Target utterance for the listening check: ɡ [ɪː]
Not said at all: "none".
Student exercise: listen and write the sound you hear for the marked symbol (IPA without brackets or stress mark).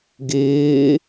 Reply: ɪː